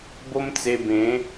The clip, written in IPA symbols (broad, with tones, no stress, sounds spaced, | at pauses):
b o˦ m t͡s e˧ b ẽ˨˦